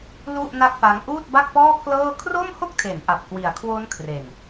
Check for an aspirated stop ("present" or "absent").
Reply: present